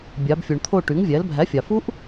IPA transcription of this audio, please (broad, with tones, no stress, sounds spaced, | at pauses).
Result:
bʲ ɑ˩˧ b fʲ u˩ ɳ t̪ʰ o˦˨ ʈ y˩˥ ŋ vʲ æ˩˥ l bʱ æ˩˥ fʲ ɑ˩ f u˦˥ ʔ